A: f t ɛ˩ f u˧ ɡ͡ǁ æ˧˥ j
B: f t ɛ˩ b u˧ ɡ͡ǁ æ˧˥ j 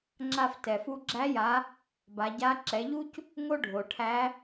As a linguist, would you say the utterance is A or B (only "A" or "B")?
A